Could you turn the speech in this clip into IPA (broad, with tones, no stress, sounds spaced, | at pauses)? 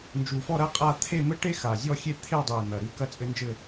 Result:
n d͡ʒ u˨˩ f ɔ˥˧ ɾ ɐ˥ qʼ a˥˧ t̪ʰ e˥˧ m ɘ˥ ʈ e˥ x a˨˩ zʲ ɔ˥˧ xʲ e˥˧ t̪ʰ e˥˧ dˤ e˨˩ n̪ ɐ˨˩ ɾ ɨ˥˧ k ɐ˥ t͡sʼ ɘ˥ n d͡ʒ ɘ˥˧